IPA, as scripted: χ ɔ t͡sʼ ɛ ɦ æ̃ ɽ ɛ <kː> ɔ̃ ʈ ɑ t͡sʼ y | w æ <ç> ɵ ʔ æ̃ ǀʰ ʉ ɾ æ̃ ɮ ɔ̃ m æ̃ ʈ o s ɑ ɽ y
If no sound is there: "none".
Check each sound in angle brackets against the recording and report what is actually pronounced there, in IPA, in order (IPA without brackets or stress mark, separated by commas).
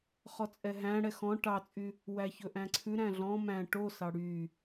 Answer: x, ç